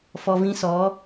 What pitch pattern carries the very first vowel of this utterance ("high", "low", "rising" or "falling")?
low